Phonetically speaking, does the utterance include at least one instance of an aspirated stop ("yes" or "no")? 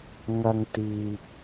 no